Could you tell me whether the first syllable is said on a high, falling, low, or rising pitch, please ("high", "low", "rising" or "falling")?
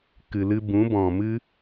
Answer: low